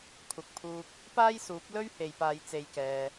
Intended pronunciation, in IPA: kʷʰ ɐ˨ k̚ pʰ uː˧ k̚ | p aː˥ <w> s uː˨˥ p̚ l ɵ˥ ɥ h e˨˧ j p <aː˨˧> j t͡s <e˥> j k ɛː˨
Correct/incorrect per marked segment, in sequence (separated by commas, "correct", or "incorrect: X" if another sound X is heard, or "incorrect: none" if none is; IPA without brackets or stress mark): incorrect: j, correct, incorrect: e˨˧